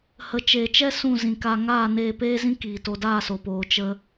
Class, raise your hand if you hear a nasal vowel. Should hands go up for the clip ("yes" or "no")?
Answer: yes